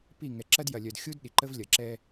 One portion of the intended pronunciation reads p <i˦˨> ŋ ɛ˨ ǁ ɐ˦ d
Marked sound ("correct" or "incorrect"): correct